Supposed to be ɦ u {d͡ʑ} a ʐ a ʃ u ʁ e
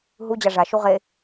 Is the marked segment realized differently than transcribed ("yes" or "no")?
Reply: no